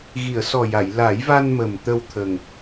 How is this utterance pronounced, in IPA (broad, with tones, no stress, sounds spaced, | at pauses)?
ɣ i˨˩˨ ə̯ s ɔ˨˩ j a˨˩˨ j l a˨˩˦ j v a˧ n m ə˨˩ m t̪ ə˧ w t̪ʰ ə˨˩ ŋ